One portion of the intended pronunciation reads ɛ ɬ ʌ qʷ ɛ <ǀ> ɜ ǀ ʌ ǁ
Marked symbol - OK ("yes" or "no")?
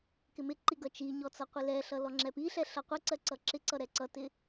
yes